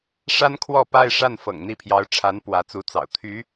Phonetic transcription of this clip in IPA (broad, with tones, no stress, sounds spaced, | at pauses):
ʂ a˥ n kʰ w ɔ˥˧ p a˥˧ ɪ̯ ʂ a˥˩ n f ɤ̰˨˩ ŋ n̪ i˥˩ pʰ j ɑ˧˥ ʊ̯ ʈ͡ʂʰ a˧˥ n p w ä˧˥ t͡s u˧˥ t͡s ɑ̰˨˩ ʊ̯ t̪ʰ y˧˥